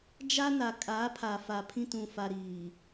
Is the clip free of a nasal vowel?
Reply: no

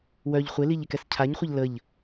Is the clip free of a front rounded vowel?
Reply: no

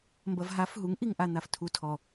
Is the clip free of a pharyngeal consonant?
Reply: yes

